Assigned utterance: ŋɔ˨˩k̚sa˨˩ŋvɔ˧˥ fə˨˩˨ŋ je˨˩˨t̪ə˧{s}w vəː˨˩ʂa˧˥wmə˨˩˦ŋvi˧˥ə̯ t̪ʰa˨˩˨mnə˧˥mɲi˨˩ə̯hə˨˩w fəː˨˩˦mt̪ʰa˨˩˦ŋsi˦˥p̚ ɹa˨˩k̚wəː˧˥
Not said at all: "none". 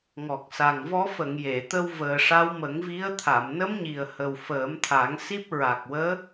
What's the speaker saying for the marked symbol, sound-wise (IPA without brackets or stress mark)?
none